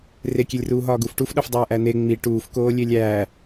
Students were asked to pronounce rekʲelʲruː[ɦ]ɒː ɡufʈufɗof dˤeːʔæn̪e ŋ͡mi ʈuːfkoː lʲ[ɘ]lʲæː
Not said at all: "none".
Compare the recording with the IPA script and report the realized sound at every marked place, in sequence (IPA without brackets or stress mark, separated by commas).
ɦ, e